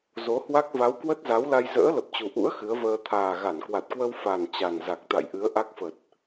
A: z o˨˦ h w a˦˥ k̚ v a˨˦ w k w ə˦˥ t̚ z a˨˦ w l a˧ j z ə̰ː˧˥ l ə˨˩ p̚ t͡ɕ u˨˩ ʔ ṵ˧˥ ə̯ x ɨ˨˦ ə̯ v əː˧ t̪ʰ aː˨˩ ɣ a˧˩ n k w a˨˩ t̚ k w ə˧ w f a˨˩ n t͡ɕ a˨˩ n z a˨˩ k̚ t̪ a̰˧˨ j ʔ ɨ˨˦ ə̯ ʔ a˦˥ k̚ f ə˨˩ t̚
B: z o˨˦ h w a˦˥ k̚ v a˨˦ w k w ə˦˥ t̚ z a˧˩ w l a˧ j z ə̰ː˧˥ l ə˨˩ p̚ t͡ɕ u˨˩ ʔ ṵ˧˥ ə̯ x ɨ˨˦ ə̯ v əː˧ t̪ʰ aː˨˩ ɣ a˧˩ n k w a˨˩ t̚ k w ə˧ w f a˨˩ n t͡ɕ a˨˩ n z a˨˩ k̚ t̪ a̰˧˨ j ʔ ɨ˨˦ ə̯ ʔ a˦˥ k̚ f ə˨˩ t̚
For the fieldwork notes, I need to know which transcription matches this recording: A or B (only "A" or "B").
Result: A